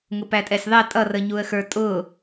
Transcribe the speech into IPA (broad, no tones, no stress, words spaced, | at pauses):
ŋʊpætʼɛsʲðˤɛ tʼʌrəɲuə̯xə˞ tʼʊ